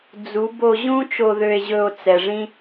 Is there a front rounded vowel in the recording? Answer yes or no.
yes